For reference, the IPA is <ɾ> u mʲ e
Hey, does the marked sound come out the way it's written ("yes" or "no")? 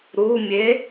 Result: yes